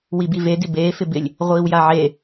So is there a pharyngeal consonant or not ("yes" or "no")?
yes